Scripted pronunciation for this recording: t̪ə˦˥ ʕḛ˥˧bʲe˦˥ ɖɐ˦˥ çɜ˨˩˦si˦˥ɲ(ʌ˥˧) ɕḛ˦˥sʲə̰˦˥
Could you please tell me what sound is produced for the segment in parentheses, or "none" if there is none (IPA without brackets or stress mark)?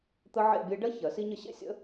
ə˥˧